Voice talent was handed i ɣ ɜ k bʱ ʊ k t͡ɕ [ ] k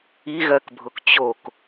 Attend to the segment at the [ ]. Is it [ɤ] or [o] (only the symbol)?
o